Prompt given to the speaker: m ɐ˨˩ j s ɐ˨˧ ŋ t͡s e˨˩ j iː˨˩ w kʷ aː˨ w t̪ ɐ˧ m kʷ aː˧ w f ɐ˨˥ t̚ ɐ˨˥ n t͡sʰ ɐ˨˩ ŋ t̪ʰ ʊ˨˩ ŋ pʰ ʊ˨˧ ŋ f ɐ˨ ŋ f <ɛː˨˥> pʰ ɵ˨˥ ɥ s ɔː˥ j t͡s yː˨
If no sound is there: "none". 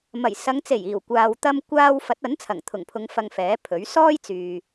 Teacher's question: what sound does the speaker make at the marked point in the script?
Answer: ɛː˨˥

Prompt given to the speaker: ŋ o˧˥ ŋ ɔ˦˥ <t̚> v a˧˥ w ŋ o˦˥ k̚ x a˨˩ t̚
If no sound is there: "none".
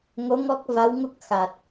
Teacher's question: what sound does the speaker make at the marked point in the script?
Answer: k̚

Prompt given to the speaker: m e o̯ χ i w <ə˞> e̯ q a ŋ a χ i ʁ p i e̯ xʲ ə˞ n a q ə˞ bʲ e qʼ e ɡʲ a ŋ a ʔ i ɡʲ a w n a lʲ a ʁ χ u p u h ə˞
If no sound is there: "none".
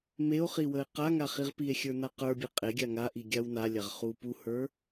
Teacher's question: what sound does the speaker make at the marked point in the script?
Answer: ə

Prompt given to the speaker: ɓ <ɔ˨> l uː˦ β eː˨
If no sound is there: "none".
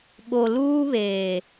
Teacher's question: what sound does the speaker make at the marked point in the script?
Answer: o˨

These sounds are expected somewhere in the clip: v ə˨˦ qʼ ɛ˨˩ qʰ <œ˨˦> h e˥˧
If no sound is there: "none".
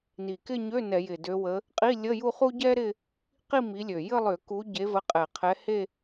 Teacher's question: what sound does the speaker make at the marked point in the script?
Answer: ɛ˨˦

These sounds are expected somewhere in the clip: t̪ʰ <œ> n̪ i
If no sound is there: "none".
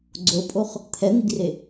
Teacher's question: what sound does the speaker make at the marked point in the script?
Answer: ɛ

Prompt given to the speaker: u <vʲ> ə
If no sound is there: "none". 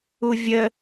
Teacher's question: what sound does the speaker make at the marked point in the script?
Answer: vʲ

